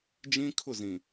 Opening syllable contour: high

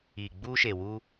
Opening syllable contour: low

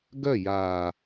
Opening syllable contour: falling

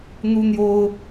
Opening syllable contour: high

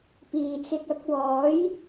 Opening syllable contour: low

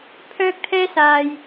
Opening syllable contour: high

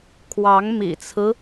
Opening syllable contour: rising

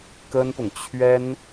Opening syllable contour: high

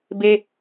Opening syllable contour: high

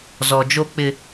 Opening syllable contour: low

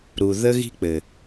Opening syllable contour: low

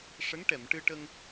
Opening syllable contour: rising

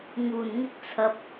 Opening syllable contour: low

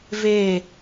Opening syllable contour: falling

